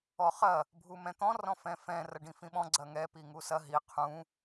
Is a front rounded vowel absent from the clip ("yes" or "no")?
yes